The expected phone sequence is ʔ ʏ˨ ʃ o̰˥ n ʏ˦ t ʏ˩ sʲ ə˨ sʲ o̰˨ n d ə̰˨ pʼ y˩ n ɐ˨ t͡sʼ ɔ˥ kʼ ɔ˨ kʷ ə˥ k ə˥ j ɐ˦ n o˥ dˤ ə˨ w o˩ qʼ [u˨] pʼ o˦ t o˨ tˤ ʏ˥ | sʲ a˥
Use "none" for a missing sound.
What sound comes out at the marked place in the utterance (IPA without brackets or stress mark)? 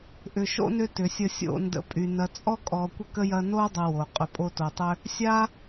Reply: ʏ˨